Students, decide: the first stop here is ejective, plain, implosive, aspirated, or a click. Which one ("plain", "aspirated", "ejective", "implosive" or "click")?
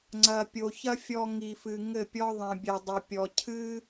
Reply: click